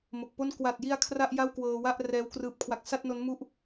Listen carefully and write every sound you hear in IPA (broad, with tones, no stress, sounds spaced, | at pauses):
m o˨˩ k̚ p o˥˩ n k w a˨˩ t̚ j i˧ a̯ kʰ r a˥˩ ʔ j a˥˩ w k w ɤː˧ w a˥˩ ʔ r ɛː˦˥ w k r ɯː˦˥ p̚ kʰ w a˦˥ k̚ s a˥˩ t̚ n o˦˥ n m u˥˩ ʔ